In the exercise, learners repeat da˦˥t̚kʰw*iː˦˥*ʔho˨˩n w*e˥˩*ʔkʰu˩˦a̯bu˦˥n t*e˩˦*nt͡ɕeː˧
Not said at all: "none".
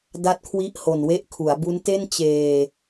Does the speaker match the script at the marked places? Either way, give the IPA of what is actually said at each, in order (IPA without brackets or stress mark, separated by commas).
i˦˥, e˦˥, e˥˩